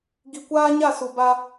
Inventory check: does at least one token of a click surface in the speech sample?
no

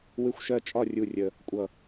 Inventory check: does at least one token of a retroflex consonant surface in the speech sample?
no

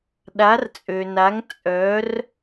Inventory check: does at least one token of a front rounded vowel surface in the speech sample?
yes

